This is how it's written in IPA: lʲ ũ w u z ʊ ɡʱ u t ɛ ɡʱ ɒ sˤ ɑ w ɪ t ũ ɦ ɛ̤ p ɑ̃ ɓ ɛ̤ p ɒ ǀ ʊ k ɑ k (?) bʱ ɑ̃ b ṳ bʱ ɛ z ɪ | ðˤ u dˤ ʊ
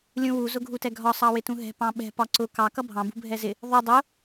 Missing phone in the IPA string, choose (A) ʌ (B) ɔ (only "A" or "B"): A